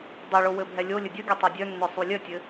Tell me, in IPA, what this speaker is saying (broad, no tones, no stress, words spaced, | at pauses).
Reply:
dˤeɭo wɘbʱɛlʲolʲɘ dʲəɡʲo tˤœdʲœnːœ sˤulʲœtʲɘ